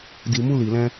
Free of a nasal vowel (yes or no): no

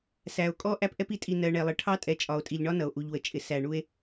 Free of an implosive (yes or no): yes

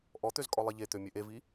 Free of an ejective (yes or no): no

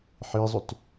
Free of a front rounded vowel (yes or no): no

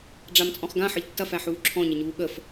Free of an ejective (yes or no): no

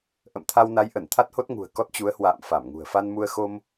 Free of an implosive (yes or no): yes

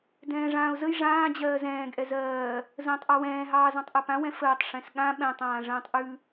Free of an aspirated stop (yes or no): yes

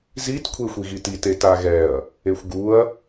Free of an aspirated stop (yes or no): no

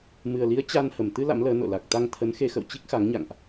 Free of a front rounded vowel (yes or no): yes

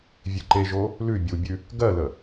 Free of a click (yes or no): no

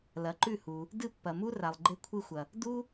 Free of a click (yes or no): no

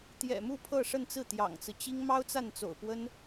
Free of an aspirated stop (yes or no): no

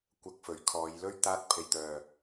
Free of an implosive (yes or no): yes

